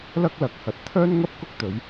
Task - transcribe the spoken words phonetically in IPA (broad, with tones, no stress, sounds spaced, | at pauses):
l ɐ˥ k̚ l ɐ˨˥ k̚ h ɐ˨˥ t̚ t̪ʰ œː˥ n ŋ ɐ˥ p̚ k ʊ˥ k̚ t̪ ɵ˨˧ ɥ